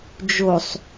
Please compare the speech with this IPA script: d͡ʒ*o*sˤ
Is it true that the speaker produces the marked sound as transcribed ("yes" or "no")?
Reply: yes